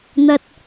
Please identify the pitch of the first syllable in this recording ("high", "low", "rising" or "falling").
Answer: high